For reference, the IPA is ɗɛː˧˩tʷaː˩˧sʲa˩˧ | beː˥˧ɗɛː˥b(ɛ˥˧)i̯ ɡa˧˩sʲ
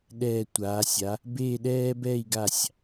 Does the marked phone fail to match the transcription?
no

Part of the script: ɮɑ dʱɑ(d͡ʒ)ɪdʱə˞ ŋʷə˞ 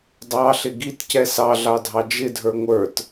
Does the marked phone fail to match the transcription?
no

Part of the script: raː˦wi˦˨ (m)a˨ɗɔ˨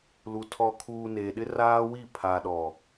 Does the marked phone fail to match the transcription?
yes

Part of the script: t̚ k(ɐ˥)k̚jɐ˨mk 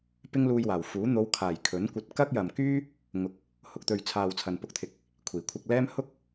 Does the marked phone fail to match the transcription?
no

